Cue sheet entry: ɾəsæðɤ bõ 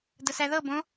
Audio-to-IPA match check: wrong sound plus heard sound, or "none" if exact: ɾ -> d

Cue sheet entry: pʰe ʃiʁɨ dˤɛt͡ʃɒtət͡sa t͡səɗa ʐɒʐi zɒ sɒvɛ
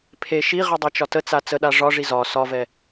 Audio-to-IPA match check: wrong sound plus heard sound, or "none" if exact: none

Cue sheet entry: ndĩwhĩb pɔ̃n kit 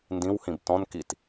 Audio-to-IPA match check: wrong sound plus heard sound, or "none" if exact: p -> t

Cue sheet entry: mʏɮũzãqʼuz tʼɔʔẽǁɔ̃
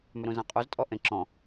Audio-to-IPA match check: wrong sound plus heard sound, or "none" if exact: ɮ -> ɾ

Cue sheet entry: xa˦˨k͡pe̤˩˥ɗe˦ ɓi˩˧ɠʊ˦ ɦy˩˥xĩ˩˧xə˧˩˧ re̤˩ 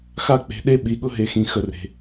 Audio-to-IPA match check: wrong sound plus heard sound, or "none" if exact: y˩˥ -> e˩˥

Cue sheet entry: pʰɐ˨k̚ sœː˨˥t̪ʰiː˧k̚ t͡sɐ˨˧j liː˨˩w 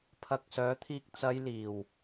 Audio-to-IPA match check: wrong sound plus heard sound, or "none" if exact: none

